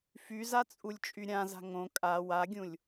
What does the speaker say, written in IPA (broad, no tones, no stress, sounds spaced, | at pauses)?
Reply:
f y z a t͡sʼ u lʲ t͡ʃʼ y ɾʲ ã z a̤ ŋ õ kʼ a w a ɡʲ ũ lʲ